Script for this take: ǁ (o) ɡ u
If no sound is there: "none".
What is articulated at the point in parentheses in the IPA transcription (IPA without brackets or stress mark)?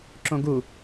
õ